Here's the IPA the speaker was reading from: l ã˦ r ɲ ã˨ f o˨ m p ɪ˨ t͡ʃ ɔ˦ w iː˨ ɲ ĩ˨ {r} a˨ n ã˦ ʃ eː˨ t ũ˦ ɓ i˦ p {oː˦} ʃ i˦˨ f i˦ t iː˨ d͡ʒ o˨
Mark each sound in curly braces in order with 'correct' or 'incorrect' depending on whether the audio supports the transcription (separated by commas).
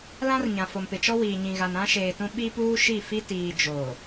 incorrect, incorrect